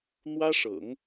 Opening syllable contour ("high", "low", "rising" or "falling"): high